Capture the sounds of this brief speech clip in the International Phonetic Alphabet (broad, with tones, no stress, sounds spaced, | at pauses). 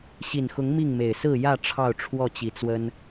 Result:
ɕ i˨˩ n x ʊ˨˦ ŋ m i˥˨ ŋ m e˨˩ ɪ̯ s ɹ̩˥˨ j ä˥˨ ʈ͡ʂʰ ɑ˥˨ ʊ̯ ʈ͡ʂʰ w ɔ˥˨ t͡ɕ i˨˩ t͡s w ə˦ n